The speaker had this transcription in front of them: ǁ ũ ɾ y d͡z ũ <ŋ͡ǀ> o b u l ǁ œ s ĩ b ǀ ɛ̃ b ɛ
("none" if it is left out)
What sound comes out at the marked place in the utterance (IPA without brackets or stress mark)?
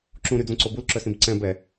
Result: ǀ